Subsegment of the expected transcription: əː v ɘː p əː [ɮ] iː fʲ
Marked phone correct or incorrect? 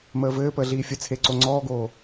correct